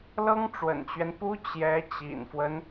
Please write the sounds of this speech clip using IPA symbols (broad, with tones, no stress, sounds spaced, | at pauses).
l ɤ˥ ŋ ʈ͡ʂ w ə̰˨˩ n t͡ɕ ɥ ɛ˦ n p u˥ t͡ɕ j ɛ˧˥ t͡ɕ ḭ˨˩ n f w ə˦ n